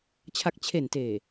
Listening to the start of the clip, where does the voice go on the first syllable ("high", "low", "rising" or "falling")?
low